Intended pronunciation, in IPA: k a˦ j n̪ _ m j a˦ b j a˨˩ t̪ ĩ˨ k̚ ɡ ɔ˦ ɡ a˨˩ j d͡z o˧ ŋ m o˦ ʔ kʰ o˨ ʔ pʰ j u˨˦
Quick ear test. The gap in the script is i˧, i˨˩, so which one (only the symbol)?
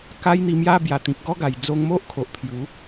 i˧